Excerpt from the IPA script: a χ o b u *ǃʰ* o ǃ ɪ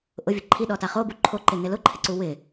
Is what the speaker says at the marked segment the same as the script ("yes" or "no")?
yes